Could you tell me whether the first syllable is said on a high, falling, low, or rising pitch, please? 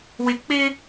low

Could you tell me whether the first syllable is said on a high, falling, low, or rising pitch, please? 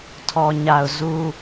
low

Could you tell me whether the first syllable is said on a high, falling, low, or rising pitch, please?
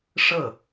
falling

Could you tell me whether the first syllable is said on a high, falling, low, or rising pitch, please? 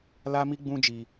high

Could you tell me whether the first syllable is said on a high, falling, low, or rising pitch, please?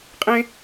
high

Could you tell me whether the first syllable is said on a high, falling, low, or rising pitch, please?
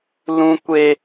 high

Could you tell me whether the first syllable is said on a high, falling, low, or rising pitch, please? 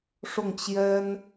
falling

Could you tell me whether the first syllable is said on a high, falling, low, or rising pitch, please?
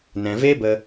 low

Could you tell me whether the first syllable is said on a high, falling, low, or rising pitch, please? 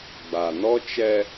low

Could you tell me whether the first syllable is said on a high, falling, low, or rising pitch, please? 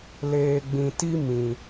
low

